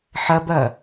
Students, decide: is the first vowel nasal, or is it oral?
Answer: oral